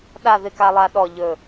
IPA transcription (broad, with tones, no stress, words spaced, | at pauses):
ɗa˦˨ðɪ˦˨ka˦lˠa˦ ɗɔ˦˨ʎɵ˦˨